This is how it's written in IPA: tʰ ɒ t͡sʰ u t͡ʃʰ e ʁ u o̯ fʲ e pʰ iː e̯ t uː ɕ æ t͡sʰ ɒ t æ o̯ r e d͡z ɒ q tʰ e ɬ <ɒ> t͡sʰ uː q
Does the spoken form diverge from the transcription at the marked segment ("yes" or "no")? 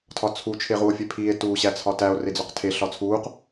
no